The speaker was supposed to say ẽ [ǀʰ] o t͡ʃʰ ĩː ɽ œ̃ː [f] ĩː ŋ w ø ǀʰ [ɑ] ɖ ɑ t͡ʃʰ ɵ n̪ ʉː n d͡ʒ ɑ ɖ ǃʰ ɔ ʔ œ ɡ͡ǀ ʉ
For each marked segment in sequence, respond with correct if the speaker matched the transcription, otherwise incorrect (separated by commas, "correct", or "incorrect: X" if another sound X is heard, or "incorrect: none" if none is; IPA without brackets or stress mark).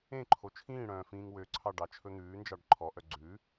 incorrect: ǃʰ, correct, correct